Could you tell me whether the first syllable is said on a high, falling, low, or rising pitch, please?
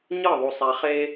falling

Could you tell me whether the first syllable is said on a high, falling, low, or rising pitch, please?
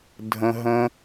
high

